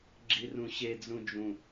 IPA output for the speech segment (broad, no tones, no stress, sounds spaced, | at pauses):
ɡ͡ǁ i r ũ ɕ e d͡z ũ d͡ʒ ũ